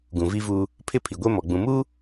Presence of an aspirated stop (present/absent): present